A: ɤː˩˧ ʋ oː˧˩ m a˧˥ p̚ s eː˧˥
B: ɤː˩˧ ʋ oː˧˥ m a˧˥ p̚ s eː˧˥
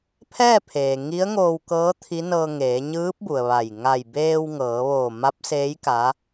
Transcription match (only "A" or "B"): A